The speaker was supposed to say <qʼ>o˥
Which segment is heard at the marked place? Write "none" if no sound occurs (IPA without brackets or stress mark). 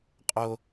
qʼ